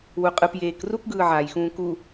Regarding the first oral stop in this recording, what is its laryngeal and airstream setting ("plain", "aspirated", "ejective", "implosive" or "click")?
ejective